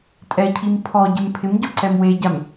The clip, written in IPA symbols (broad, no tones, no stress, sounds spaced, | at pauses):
tʼ ɛ cʰ i m pʰ ɔ ɟ ɪ m pʰ ɪ m ɟ ɔ ǀ ɛ m w e ɟ a m